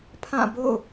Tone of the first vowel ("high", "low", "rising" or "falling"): falling